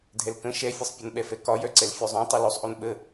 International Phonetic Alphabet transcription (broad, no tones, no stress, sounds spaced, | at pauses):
dʱ ɛ l k ə̃ ʃ ɛ fʲ ʌ sˤ pʲ ʌ n ɓ ɛ f ɛ k ɒ j œ ǀ ɛ l fʲ œ zˤ œ̃ tˤ œ l o sˤ ʔ o n ɓ ə